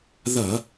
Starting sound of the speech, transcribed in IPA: ð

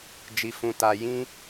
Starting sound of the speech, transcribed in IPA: d͡ʒ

